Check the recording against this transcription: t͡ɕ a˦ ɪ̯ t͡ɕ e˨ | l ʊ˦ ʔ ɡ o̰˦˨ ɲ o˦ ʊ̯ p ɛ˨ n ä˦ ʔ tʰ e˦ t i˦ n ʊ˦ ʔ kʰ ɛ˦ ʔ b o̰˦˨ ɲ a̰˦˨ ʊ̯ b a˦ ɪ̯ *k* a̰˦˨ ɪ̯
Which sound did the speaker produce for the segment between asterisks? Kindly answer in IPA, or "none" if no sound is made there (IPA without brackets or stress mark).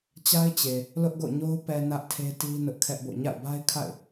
kʰ